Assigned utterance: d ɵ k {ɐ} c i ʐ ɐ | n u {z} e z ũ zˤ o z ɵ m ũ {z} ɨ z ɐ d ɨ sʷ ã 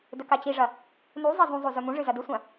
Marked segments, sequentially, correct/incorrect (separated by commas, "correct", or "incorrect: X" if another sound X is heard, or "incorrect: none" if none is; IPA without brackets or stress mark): incorrect: a, incorrect: zˤ, incorrect: ʐ